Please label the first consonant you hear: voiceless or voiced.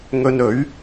voiced